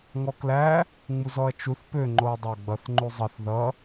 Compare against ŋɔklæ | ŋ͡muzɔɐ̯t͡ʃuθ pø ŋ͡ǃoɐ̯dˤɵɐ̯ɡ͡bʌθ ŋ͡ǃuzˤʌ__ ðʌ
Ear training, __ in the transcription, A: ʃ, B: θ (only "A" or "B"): B